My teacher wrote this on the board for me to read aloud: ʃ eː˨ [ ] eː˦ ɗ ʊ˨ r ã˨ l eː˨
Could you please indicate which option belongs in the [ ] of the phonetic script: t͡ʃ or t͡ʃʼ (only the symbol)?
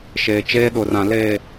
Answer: t͡ʃ